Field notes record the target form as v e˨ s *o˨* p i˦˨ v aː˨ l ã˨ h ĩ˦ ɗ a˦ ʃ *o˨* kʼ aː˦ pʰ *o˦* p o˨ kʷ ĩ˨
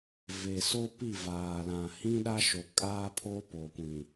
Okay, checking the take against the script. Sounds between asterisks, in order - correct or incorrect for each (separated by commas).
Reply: incorrect, correct, correct